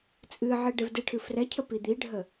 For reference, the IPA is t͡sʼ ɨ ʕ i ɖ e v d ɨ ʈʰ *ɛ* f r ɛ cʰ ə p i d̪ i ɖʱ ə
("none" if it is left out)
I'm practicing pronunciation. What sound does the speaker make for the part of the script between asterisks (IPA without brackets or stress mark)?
ɨ